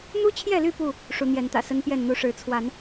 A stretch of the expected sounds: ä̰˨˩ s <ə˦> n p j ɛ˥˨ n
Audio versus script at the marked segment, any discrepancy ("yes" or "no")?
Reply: no